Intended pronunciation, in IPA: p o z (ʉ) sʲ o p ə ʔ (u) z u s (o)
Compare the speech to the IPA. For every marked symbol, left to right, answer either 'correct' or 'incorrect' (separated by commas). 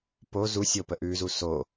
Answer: incorrect, incorrect, correct